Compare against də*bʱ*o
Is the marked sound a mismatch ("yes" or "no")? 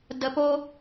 yes